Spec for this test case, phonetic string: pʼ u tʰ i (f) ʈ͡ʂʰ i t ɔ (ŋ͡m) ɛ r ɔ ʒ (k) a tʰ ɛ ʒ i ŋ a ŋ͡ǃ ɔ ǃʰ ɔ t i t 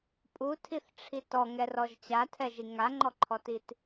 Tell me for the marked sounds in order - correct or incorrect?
incorrect, incorrect, incorrect

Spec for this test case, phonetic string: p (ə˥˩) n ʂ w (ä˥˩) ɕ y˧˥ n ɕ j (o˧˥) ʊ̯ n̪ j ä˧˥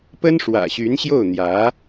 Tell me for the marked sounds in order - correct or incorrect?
incorrect, incorrect, incorrect

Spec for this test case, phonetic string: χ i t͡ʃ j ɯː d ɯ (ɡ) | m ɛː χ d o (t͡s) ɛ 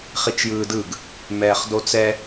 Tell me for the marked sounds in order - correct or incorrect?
correct, correct

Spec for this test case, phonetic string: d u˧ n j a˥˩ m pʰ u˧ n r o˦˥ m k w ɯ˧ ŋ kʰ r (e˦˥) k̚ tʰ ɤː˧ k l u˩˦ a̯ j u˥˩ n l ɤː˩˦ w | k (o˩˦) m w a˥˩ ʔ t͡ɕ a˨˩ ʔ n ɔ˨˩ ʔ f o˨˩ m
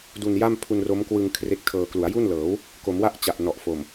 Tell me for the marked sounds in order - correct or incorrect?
correct, correct

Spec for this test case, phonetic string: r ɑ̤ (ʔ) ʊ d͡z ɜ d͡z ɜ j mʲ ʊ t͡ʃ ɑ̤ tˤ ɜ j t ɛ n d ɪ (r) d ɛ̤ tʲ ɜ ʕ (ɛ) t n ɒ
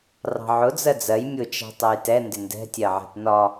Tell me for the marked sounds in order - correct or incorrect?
incorrect, incorrect, incorrect

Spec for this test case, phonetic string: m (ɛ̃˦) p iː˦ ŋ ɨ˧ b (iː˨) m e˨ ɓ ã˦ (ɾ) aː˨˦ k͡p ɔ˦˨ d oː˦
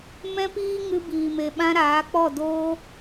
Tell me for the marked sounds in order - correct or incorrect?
correct, correct, correct

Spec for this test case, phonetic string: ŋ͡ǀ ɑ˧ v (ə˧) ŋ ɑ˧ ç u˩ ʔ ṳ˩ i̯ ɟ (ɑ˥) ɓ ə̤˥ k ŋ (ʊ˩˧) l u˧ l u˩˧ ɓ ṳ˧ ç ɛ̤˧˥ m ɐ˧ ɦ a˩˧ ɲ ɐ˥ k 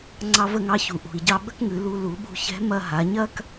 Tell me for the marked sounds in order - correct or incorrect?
correct, incorrect, incorrect

